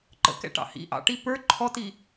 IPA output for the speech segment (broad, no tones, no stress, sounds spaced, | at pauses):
ǃ ə̰ k ɛ̰ ʈ ɑ̰ h ḭ ʔ ɑ̰ ʈ i p ə˞ ǃʰ ɔ t i